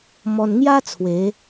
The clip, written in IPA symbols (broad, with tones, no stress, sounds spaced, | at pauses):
m ɔ˧ n ŋ j a˦ t͡sʰ w e˨˦